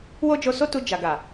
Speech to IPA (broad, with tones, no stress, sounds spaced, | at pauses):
w o˦ d͡ʒ o˧ s o˦ t u˧ d͡ʒ a˨ ɡ a˨